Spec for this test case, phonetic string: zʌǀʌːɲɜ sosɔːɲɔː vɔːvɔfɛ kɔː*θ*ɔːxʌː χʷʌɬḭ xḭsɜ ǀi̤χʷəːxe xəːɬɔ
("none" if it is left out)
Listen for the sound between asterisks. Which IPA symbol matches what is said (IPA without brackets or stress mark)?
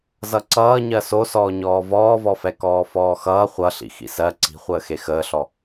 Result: f